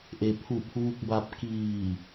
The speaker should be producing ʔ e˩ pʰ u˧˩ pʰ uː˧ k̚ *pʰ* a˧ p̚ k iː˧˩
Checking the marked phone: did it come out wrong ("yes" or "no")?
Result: yes